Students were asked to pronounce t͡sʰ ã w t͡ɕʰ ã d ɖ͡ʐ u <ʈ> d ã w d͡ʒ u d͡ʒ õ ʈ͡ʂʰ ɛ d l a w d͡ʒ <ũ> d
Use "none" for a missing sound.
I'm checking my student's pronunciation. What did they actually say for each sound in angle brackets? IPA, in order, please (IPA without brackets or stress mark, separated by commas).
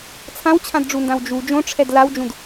n, ũ